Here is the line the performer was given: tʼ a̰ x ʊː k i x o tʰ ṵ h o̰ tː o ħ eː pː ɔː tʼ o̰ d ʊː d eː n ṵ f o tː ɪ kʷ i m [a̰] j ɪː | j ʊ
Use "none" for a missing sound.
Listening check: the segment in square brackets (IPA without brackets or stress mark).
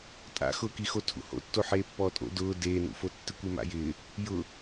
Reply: a̰